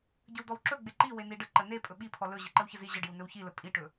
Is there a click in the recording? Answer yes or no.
yes